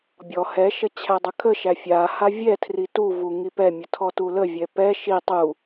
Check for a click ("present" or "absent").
absent